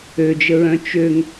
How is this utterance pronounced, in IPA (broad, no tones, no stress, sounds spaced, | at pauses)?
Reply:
ø d͡ʒ ə ɹ œ̃ t͡ʃ ø ŋ